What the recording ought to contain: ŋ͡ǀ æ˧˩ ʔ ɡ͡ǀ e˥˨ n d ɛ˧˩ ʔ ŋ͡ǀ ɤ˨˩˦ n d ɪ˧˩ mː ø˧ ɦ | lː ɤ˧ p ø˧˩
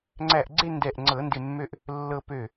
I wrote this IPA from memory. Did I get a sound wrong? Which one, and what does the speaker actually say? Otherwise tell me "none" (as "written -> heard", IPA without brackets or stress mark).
ɦ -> ʔ